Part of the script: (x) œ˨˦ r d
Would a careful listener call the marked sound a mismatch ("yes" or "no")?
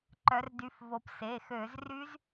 yes